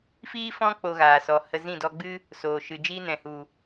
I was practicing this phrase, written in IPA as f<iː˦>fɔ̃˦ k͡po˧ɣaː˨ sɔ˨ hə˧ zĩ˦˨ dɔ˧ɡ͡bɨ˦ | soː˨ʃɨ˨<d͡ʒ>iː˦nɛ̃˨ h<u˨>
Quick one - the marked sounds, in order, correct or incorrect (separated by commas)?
correct, correct, correct